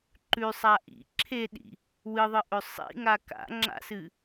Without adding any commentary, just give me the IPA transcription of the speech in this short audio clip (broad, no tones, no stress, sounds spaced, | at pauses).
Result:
ǃ ʉ sˤ a ʔ ḭ ǁʰ e ɗ ḭ | w ɨ ðˤ ɨ ʔ ɵ sˤ ḭ ŋ a k a̰ ŋ͡ǁ a̰ s ɨ